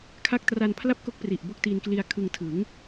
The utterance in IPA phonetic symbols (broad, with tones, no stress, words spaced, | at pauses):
kʰa˦˥k̚tra˧n pʰla˥˩p̚ko˦˥k̚ pri˨˩ʔbo˥˩k̚ ti˧nkli˧a̯kʰɯ˧ŋ tʰɯ˩˦ŋ